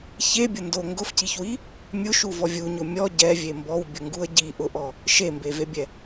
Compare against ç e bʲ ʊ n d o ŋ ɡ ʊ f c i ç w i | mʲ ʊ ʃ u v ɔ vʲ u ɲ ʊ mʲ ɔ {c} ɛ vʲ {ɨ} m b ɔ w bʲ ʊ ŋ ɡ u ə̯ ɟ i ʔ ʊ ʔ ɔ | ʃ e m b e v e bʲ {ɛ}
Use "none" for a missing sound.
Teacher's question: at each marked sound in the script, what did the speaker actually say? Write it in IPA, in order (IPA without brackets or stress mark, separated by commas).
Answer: ɟ, e, ɛ